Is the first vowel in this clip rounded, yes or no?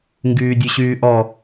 yes